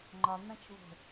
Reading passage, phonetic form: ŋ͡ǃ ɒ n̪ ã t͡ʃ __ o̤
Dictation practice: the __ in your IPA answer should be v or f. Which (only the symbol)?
v